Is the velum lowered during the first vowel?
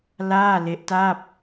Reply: no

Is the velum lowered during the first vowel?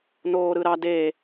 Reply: no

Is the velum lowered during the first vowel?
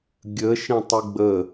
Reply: no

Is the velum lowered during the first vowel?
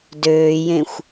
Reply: no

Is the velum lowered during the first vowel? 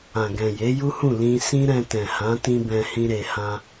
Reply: yes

